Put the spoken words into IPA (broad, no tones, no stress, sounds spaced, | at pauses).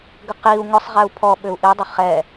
ɡ ʏ q i u̯ ŋ ʊ sˤ ʁ ɛ u̯ pʰ ɔ ɓ ʏ u̯ ʔ i dˤ ʏ χ ɛ